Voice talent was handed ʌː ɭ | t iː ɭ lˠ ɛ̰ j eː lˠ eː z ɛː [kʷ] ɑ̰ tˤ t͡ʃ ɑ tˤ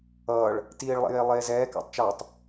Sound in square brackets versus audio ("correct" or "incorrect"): incorrect